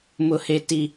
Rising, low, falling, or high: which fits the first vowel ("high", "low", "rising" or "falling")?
low